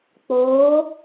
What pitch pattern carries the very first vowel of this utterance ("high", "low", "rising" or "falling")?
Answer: rising